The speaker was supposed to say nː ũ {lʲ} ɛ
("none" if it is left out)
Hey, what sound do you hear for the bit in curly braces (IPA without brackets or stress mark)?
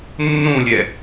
lʲ